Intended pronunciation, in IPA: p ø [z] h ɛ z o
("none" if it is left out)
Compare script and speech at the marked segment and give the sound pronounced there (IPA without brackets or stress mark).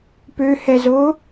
none